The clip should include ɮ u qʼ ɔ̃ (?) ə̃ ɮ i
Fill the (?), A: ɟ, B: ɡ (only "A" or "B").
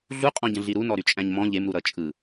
A